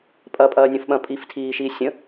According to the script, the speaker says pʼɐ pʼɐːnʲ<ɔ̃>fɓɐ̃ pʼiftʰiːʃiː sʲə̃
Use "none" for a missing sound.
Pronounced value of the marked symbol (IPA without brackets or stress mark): õ